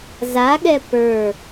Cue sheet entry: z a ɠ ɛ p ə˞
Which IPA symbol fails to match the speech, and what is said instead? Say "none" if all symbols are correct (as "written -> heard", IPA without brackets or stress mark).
none